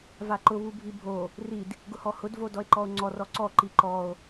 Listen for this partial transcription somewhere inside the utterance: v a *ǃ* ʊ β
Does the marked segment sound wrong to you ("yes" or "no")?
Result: no